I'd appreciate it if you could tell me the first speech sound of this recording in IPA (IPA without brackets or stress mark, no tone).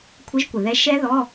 kʷʰ